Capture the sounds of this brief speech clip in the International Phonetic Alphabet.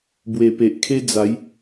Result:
bwe˨˩pe˨ʔ kʰe˦d͡za˨˦j

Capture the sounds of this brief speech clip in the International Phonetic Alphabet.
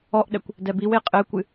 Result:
ɔʔɗɛkʷ | dɛbiwe qʼɘːkʷɨ

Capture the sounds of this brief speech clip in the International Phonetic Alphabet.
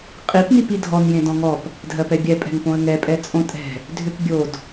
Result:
qʼip nipidʱɔn jẽdɔ̃ŋɔp | dʱɜpɛbʲɛ pʼɛ̤ŋpõə̯ŋɛ pʼɛt͡sʼõtʼɛ̤ | dʱʏpbʲod

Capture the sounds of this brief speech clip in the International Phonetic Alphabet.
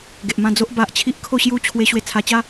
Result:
ɡe˨ʔmã˥˧d͡zo˦ʔ ba˨ʔ t͡ɕʰi˦ʔkʰo˥˧ɕju˦ t͡ɕʰwe˧ ɕwe˧t͡sʰa˧t͡ɕa˦

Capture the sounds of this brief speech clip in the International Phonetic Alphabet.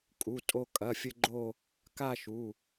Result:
kʼu˩˧˩tʼo˧ kʼɐ˩˧˩fʲɘ˧ ɡ͡ǃo˥˧ | ka˥˧ʃu˩˧˩

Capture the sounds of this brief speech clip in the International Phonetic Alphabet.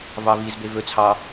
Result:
vɑvizbe vɵt͡sʰɑ

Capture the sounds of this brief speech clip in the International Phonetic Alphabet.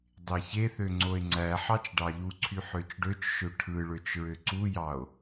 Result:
dˤeçeθø ŋ͡ǀoe̯ŋ͡ǀæħɑt͡ʃ ɖɑʎuǀʰy ħøt͡ʃɖøt͡ʃʃø ʈʰɯɭøt͡ʃ ɹøǀujɑo̯

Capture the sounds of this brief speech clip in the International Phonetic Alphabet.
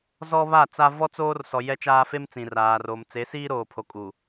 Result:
zɔ˦βa˦˨t͡sa˦ vɔ˦t͡soː˦r sɔ˨ jɛ˦t͡ʃaː˦ fe˦mt͡sĩ˨raː˨ro˨m t͡se˨˦siː˦ɾoː˨pʰo˨ kʼu˨

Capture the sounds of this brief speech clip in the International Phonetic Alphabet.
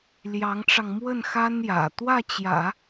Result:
ljɑ˧˥ŋʈ͡ʂɑ˧ŋ mwə˥˩n xa˥n jä̰˨˩ t̪wä˥˩t͡ɕjä̰˨˩˦

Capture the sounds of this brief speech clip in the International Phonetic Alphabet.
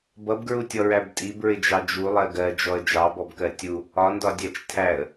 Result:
bʌbɡɹutʲɔɹæb tʼibɹɪd͡ʒɑ d͡ʒulˠɜ ɡɜd͡ʒɔə̯ d͡ʒɑbɔbkɜ tʲu | ɒndɒdʲæt͡ʃ tʰæə̯

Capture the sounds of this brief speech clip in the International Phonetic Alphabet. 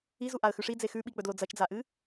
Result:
izuʔaə̯ xʉʂid͡ze xʉɓik͡pɵdlo d͡zɐt͡ʃd͡zaʔɨ

